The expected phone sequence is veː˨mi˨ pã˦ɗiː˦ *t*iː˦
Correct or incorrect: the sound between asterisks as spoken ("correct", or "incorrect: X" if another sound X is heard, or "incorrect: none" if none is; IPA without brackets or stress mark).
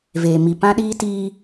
correct